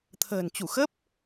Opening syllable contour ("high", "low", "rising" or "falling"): low